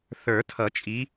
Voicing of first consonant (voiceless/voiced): voiceless